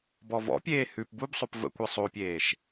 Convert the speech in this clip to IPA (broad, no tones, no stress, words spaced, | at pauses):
bɔvɔ̰pʲeː hʉp bubsˤop və̰kʷe sˤopʲeːʃ